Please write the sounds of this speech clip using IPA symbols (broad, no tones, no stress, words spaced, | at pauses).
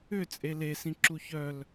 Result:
ʏt͡sʼe lesĩǁu çœl